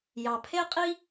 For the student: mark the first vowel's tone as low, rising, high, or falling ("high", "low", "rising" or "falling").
low